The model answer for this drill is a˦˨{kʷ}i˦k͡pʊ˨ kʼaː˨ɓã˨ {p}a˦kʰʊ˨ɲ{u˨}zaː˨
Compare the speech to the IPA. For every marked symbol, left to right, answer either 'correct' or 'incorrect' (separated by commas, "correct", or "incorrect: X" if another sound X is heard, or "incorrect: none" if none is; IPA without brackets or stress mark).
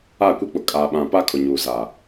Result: correct, correct, incorrect: uː˨